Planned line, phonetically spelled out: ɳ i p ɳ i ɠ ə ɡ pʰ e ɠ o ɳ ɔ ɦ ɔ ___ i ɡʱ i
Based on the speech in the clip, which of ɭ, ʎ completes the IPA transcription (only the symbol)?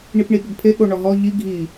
ʎ